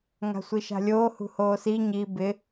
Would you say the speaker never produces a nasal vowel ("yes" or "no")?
yes